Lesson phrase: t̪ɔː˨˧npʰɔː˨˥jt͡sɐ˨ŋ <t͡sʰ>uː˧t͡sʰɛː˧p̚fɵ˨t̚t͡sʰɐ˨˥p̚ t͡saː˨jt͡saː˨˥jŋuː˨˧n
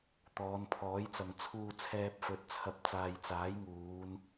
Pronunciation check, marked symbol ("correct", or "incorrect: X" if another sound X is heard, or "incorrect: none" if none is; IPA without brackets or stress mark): correct